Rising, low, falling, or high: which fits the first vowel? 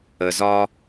low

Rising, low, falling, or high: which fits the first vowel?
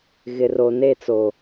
low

